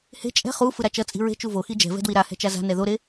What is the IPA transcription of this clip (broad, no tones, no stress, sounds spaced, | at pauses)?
h e̤ t͡ʃʼ ɛ̤ χ u f ɯ ɾ a t͡ʃ ʌ t͡sʼ i̤ ɹ e̤ t͡ʃ u v o x i d͡ʒ ɛ̤ v ɛ̤ d w i ɾ a h ɛ̤ t͡ʃ a z a̤ n ɛ ð o ɾ e